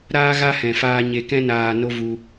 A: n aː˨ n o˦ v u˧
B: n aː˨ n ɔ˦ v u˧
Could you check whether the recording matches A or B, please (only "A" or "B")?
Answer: A